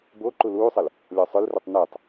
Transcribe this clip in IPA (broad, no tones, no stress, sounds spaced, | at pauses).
b o ǃ u l uː sˤ ɤ l | lʲ ɔ sˤ ɵ l r u tˤ n uː tˤ